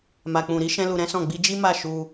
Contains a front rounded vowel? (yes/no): no